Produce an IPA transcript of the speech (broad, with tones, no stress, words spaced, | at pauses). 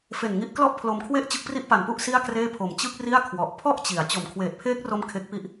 fe˨˩nŋi˦˥ʔ klɔ˥˩ʔpʰlo˧mkʰwe˥˩ʔ t͡ɕɯ˦˥k̚pri˥˩ʔpa˨˩npu˥˩ʔ si˥˩a̯kreː˥˩pʰo˨˩m t͡ɕɯ˥˩k̚ ri˥˩a̯kʰwɔ˨˩ʔ pʰɔ˥˩ʔ t͡ɕi˩˦a̯ t͡ɕo˨˩m kʰweː˨˩t̚pʰeː˦˥k̚ro˧m kʰe˦˥k̚pi˦˥ʔ